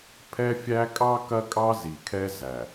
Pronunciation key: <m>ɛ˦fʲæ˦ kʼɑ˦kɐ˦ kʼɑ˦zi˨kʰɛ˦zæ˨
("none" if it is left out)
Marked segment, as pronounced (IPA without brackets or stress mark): pʰ